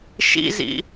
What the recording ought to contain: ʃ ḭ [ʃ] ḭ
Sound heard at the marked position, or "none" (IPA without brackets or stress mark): z